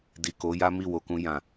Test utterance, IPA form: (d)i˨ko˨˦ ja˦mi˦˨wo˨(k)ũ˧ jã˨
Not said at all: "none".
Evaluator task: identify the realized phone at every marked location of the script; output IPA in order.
d, k

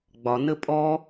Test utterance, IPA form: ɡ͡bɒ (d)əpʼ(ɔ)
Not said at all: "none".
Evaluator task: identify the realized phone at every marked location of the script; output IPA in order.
n, ɔ

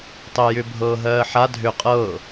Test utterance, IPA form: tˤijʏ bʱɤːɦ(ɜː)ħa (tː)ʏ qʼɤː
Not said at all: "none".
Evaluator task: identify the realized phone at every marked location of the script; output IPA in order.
ɜː, dʱ

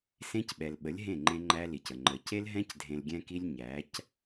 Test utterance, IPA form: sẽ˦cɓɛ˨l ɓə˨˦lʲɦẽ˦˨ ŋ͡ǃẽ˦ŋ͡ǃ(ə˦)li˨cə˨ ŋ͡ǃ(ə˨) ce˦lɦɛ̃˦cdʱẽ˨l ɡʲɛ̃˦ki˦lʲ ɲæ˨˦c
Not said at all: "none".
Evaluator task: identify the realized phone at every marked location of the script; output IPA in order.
æ˦, ə˨

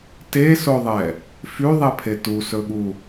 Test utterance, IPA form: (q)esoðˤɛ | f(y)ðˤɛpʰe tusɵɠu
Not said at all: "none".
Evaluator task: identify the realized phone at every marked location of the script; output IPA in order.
t, y

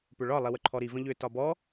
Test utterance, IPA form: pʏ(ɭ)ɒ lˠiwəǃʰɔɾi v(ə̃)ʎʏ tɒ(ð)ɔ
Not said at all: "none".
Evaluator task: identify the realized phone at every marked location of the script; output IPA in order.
ɭ, ə̃, b

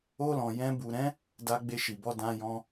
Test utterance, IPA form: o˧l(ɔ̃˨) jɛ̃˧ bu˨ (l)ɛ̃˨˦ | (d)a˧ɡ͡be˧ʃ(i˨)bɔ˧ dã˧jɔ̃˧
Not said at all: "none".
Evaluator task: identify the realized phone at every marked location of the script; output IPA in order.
ɔ̃˨, ɾ, d, i˨

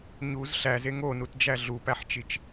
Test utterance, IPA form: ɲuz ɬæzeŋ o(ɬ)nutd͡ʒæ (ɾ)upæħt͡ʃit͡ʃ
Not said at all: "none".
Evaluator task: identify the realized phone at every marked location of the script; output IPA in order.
none, ɮ

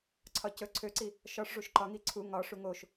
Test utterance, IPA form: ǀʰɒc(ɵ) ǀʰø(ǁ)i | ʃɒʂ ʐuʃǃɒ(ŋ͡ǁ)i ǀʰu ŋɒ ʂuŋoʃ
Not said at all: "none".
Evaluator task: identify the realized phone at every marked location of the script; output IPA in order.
ɵ, ǀ, ŋ

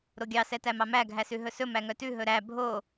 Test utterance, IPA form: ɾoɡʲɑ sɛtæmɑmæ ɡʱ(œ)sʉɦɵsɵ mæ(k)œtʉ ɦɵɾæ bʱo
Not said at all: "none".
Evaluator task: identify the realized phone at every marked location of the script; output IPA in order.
æ, ŋ

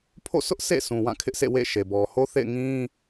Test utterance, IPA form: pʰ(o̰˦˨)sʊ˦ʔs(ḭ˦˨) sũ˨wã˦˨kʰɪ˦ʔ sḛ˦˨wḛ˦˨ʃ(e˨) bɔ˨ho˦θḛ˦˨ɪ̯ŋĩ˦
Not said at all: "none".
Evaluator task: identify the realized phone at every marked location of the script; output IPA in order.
o̰˦˨, ḛ˦˨, e˨

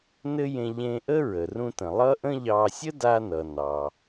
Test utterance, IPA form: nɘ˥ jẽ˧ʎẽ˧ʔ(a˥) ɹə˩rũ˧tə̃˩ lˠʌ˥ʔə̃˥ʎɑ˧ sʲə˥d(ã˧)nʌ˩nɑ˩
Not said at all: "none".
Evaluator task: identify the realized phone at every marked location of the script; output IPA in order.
ə˥, a˧

